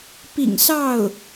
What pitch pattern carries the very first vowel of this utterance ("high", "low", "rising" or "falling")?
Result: low